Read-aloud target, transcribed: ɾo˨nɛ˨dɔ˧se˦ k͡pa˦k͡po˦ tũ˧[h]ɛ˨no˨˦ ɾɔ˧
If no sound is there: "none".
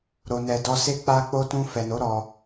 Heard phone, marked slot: f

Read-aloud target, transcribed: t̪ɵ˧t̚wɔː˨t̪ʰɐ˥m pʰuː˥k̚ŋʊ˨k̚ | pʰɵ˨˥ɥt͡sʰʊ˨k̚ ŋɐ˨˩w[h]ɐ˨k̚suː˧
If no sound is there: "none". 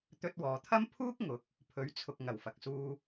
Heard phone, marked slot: f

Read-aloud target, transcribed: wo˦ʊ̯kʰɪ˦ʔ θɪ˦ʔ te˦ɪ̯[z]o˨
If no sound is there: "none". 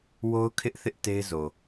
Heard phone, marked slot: z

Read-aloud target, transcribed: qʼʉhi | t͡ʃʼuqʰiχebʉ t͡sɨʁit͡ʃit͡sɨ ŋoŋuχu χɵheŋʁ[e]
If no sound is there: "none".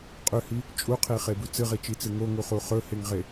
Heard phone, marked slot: e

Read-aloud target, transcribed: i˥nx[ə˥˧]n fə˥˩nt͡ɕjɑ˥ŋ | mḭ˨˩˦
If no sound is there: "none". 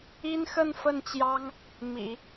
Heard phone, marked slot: ə˥˧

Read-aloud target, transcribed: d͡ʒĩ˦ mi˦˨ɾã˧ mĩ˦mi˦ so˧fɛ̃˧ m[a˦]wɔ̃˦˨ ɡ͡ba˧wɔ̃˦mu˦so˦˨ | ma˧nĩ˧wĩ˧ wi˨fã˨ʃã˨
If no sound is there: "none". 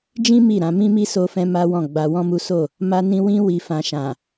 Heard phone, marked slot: a˦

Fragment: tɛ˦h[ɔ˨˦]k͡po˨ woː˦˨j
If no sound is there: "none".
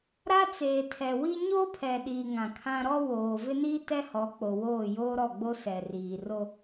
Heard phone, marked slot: ɔ˨˦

